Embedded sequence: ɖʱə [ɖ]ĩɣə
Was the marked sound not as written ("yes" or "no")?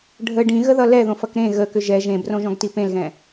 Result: no